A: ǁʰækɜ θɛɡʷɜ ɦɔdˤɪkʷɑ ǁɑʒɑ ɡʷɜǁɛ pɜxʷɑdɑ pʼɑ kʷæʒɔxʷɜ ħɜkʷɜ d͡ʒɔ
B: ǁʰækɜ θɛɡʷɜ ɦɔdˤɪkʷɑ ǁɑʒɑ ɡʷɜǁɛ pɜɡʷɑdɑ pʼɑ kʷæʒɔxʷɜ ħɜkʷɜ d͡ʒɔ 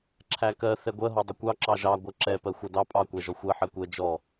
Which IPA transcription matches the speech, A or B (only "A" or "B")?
A